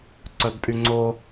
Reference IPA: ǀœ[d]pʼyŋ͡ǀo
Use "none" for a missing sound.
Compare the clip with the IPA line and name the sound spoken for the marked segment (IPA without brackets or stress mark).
d